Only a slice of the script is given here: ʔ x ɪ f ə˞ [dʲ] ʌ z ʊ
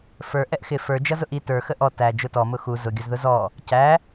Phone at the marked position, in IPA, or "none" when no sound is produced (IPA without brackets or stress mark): d͡ʒ